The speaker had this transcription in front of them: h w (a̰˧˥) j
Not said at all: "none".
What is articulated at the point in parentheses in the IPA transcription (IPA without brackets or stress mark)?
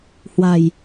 a̤˨˩